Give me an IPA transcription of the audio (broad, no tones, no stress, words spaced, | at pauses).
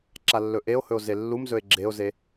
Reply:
ǁalːɵʔeo̯hɵo̯ zelːumzɵe̯ ɡ͡ǁeo̯ze